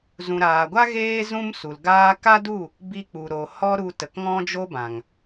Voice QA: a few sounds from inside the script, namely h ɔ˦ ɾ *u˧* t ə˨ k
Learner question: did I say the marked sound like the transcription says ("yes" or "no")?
yes